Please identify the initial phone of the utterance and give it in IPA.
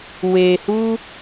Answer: w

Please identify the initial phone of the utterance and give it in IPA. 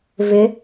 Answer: v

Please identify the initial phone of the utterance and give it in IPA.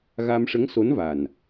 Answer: ɣ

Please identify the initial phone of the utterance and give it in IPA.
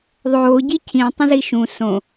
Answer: ðˤ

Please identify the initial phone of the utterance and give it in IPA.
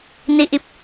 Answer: n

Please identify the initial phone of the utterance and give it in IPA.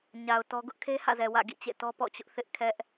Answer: ɲ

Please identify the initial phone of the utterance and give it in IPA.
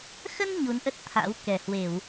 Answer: x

